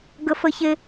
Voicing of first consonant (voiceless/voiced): voiced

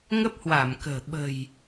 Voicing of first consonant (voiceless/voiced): voiced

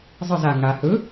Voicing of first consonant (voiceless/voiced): voiced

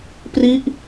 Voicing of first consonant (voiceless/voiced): voiceless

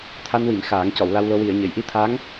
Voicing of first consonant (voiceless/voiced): voiceless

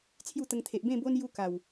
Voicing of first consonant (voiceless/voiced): voiceless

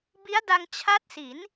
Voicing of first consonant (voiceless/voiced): voiced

